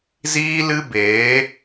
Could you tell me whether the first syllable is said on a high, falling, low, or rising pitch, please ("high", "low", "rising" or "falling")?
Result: high